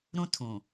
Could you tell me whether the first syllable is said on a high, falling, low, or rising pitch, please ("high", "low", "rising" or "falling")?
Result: high